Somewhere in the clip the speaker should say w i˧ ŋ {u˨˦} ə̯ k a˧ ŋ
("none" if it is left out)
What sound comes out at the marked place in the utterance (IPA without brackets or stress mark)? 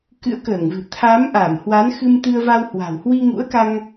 ṵ˧˥